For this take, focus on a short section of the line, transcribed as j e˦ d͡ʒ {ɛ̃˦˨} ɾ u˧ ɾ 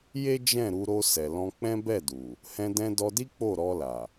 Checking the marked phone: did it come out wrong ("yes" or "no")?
no